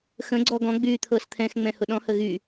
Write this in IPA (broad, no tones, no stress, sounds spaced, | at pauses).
x ə̃ ɡ͡ǀ ɔ ɡ ɔ̃ ɡ͡b yː t̪ʰ ɤː s t̪ʰ ɛ̃ x ŋ͡m ɛ̃ h ʊ ɗ ɔ̃ h ə ɣ y